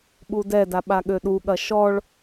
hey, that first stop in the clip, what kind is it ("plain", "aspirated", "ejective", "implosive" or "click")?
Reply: implosive